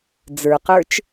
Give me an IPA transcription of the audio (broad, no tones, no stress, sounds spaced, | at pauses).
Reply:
d͡z ə˞ q ə˞ t͡ʃ